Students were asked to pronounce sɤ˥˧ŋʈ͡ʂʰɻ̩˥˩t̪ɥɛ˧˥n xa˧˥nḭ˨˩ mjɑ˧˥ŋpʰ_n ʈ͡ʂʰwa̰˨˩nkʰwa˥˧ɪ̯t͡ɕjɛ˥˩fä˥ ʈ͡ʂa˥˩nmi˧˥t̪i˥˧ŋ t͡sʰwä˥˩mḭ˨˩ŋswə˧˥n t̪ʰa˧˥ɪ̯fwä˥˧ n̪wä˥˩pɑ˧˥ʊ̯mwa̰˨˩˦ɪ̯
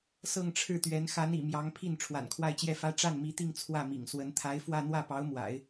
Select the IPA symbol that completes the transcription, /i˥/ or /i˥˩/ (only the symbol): i˥˩